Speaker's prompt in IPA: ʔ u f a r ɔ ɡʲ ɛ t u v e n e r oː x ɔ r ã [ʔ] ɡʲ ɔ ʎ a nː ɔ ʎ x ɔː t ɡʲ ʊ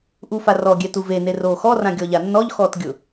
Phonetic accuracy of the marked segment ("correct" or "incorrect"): incorrect